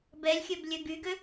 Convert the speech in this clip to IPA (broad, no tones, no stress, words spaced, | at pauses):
bɛlʲxʲøb lʲøɡyɡø